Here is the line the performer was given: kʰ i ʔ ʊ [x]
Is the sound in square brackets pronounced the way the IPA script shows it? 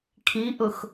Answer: yes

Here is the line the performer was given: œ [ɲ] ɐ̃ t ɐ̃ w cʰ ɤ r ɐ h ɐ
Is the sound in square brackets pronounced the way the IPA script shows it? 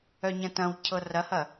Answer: yes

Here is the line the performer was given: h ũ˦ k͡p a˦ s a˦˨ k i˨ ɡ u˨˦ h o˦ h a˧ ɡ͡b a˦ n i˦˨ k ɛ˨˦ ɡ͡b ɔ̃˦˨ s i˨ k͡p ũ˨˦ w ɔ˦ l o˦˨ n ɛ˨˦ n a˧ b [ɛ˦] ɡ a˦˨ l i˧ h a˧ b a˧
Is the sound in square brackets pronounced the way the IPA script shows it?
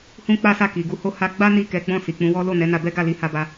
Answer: yes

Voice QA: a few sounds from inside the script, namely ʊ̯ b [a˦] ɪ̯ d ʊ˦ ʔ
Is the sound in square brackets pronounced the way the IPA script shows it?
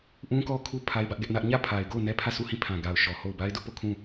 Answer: yes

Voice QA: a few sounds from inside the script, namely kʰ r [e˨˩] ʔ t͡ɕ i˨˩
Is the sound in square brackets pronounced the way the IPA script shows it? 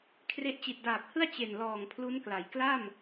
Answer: no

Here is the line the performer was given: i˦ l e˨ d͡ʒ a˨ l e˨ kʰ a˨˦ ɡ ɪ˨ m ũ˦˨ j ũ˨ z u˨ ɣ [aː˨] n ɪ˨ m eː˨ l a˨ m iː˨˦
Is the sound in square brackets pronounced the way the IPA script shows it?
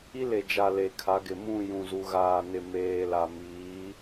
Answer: yes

